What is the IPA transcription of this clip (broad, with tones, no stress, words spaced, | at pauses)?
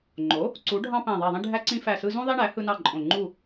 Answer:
ŋ͡ǃo˩˥ | ǀu˩˥ɖʱɑ̃˦ pæ̃˧˩ðˤæ˧˩ðˤĩ˦ ɖʱæ˦ǀĩ˦fæ˧˩sɯ˦ zũ˦ðˤi˦ɳæ˩˥ hɯ˦nɑ˥˨ǃʼõ˧˩ ŋ͡ǃu˥˨